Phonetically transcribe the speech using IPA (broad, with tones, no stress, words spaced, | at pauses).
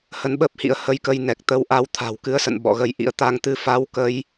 hə˧nɓəː˦˥p̚hḭ˧˥ə̯ hə˧jkə˧jnɛ˨˩k̚ t̪ə˧wʔa˧w t̪ʰa̤˨˩wkɨ˧ə̯sə̰˧˨n ɓɔ̰˧˨ɣə˧jʔḭ˧˥ə̯ t̪a˧ŋ t̪ɨ˧fa˧w kə˧j